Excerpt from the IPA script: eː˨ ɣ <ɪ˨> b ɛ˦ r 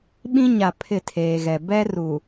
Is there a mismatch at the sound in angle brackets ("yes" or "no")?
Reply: yes